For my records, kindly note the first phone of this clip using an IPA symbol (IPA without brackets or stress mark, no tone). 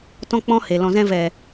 t